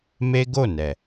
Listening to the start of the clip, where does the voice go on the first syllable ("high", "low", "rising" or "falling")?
high